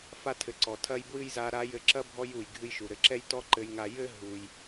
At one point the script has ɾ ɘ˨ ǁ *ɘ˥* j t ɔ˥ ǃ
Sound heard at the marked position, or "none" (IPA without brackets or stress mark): ɛ˥